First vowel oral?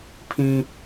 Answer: no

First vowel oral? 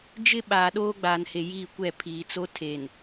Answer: yes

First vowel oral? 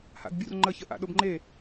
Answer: yes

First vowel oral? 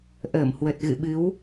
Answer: yes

